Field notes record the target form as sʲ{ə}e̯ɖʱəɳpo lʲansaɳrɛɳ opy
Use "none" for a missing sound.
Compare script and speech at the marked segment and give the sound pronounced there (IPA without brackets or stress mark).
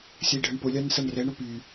ə